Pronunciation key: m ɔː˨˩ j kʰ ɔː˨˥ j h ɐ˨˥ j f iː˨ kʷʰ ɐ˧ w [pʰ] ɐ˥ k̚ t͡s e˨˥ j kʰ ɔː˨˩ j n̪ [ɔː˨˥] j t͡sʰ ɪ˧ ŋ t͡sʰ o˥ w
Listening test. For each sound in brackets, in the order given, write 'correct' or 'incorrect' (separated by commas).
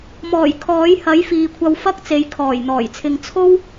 incorrect, incorrect